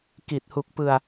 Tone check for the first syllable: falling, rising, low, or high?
low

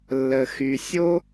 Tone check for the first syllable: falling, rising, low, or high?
low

